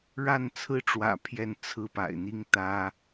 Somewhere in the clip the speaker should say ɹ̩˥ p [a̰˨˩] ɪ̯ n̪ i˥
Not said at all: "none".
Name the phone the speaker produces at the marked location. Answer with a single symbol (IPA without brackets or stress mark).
a̰˨˩